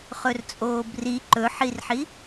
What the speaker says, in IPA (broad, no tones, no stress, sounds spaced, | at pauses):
χ ɵ r t͡sʼ oː b r i ǃ ɵ ħ i r ħ i